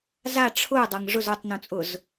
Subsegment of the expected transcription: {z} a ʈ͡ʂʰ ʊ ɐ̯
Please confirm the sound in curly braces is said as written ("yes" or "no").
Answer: yes